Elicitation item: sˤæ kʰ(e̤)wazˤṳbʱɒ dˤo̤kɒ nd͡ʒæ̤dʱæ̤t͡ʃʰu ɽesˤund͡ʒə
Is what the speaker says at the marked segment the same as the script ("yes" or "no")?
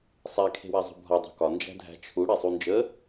yes